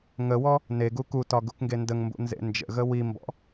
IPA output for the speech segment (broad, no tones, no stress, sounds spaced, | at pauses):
ŋ ə w ɔ | n e ɡ u k u t ɒ ɡ u k ŋ ɡ e n d ə ŋ m b ṵ n z ḛ n d͡ʒ ə̰ ɣ ə w i m b ɔ̰